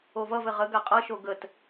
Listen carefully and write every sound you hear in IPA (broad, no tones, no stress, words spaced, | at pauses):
ovʌvɘ ʁəɡa qʼʌʃo ɡət